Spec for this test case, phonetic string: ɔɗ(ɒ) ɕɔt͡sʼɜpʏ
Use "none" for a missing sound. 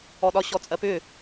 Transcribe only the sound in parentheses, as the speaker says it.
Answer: ɒ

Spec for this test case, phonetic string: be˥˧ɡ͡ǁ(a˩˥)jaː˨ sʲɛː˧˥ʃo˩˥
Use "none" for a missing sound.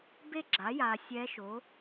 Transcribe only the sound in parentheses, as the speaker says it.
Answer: a˩˥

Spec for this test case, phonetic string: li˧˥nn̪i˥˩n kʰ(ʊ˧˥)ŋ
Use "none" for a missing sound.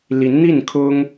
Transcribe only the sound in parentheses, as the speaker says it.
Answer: ʊ˥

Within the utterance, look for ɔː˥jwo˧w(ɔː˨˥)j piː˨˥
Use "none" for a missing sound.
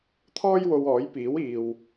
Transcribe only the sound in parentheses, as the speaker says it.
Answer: ɔː˨˥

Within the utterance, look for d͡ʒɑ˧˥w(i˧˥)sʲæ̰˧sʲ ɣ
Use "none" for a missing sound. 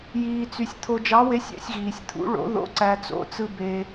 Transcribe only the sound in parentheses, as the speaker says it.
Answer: e˧˥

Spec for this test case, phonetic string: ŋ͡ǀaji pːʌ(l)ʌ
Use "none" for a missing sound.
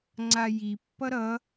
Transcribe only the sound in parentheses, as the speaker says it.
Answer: ɾ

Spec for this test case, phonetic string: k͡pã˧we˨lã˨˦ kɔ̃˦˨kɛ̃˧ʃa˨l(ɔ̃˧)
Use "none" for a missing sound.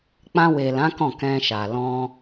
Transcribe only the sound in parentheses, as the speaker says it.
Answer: ɔ̃˧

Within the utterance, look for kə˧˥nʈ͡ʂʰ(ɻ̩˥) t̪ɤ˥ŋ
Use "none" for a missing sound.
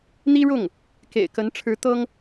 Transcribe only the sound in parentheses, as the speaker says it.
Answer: ɻ̩˧˥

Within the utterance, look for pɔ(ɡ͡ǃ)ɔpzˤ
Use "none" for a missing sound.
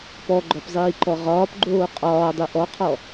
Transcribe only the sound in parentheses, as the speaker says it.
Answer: ɡ͡ǃ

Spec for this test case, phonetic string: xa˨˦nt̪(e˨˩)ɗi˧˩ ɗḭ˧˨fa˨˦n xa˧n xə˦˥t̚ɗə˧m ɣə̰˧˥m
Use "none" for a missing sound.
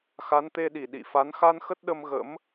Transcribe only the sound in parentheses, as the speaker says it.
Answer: e˧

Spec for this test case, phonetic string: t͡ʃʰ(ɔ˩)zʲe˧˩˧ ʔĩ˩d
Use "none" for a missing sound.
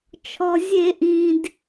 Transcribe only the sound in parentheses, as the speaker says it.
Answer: ɔ˩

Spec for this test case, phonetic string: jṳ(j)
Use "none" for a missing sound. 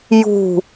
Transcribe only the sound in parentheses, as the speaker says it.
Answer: none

